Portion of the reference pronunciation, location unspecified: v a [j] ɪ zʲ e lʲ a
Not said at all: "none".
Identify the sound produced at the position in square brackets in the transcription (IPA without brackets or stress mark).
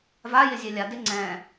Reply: j